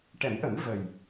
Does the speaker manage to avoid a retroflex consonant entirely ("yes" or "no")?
no